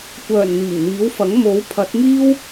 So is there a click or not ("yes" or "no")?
no